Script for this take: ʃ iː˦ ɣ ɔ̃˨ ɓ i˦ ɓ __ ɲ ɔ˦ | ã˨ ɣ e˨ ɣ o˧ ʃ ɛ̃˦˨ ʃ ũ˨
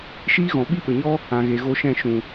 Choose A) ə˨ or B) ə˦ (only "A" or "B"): A